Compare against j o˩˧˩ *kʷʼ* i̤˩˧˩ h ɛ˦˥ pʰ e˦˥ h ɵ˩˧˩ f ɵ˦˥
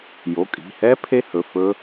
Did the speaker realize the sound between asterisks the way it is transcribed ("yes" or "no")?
no